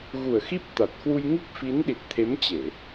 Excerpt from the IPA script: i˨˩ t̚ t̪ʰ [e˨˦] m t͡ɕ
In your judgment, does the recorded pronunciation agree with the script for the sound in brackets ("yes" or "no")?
yes